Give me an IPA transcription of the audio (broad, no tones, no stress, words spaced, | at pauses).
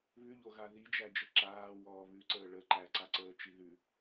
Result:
βʉʎoɣa ðid͡ʒæd͡ʒə ǁaːwɔː βʉǀəː ɭə ǃæǀaǀəːt͡ʃi ðʉ